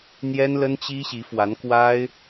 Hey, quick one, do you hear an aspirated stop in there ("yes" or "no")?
no